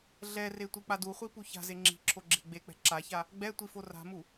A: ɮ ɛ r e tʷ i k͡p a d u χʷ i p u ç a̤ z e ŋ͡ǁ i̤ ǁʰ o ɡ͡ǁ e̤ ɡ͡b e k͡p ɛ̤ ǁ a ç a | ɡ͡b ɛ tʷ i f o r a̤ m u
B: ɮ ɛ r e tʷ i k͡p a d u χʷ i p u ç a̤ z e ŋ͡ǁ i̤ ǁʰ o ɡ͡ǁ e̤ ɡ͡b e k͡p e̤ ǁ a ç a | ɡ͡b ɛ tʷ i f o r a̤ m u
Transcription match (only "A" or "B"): A